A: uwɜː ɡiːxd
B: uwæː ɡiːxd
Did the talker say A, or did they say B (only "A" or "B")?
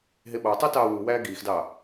B